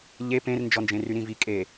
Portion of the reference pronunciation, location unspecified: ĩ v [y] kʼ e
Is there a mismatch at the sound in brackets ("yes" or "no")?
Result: yes